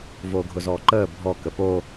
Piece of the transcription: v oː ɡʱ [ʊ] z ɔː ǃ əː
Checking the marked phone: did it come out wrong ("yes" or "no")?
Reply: no